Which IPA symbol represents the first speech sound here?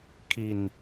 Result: kʰ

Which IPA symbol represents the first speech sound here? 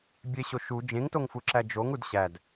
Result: bʲ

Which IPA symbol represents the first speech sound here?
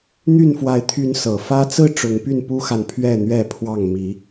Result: n̪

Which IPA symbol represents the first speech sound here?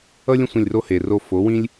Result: ʌ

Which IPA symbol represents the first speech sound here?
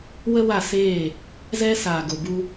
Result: w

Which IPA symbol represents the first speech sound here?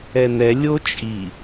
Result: ɛ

